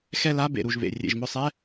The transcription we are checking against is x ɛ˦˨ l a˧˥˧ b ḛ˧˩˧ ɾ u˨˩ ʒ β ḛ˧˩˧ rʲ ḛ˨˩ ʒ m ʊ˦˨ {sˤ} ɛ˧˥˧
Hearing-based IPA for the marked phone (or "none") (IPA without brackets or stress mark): sˤ